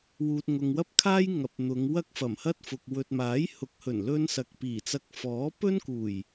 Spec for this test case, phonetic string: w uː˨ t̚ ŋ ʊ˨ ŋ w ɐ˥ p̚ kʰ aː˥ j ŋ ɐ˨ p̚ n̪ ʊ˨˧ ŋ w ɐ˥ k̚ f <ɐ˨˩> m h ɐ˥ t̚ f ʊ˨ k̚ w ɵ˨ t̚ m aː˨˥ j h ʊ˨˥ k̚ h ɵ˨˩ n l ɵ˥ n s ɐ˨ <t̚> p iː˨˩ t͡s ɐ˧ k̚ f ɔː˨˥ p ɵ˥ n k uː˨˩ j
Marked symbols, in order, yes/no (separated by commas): yes, no